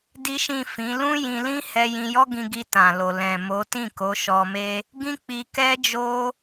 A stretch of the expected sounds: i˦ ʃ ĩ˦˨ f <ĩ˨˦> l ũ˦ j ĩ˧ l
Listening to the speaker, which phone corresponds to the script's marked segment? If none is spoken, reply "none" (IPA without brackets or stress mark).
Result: ĩ˨˦